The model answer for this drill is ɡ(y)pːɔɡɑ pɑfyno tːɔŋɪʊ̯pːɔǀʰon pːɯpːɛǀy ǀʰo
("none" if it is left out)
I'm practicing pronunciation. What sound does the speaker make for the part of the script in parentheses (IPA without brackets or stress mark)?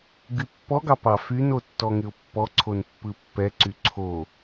y